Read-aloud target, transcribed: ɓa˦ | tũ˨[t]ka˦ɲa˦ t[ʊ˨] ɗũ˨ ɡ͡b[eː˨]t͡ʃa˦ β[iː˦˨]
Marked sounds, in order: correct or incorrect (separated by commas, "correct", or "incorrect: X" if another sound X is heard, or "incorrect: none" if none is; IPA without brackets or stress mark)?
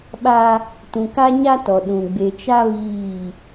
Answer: incorrect: none, incorrect: ɔ˨, incorrect: e˨, correct